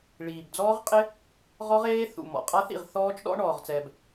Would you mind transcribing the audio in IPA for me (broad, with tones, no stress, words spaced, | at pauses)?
ɭiː˩bd͡zɔː˦˥ʁqʼɪ˦˥ | ʁɔ˦˥ʁeː˦˥ θṵ˩ mɔ̰˩qʼa˦˥θḭ˩ʁ θɔː˦˥t͡ʃɗɔ̰˦˥ ɳɔː˩ʁt͡sɛː˩b